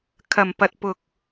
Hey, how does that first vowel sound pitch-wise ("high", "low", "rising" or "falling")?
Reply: low